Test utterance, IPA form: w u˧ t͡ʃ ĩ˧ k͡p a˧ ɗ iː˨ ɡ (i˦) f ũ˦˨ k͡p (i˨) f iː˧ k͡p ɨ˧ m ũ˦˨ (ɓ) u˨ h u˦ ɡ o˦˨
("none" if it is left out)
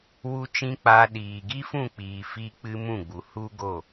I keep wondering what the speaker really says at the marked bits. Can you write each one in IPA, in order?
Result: i˦, iː˨, ɡ͡b

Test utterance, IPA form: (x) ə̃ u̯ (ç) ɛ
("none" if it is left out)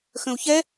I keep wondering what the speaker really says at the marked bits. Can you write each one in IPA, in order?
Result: x, ç

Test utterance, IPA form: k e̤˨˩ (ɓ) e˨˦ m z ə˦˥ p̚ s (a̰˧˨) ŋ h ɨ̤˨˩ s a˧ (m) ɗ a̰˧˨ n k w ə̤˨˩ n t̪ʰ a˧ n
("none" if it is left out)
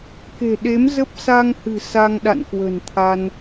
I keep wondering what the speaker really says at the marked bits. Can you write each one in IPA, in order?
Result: ɗ, a˧, ŋ

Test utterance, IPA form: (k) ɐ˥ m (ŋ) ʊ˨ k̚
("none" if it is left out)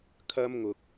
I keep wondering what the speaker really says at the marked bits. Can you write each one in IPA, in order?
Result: kʰ, ŋ

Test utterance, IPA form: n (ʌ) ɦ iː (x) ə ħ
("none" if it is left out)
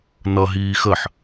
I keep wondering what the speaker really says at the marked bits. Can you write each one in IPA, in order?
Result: ʌ, x

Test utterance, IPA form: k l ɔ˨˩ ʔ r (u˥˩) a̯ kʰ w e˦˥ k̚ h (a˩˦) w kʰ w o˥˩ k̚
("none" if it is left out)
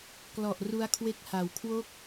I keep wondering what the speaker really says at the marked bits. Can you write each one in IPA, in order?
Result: u˦˥, a˩˦

